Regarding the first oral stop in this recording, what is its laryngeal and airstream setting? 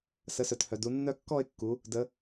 plain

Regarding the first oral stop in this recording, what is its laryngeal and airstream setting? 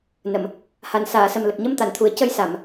plain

